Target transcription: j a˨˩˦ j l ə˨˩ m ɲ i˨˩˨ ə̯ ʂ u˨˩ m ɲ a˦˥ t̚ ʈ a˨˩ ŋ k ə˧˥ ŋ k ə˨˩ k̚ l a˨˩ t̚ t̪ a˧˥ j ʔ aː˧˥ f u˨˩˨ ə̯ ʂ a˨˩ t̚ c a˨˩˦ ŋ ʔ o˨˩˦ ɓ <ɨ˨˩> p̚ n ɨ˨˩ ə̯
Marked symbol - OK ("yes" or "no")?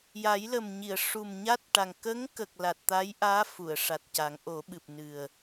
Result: yes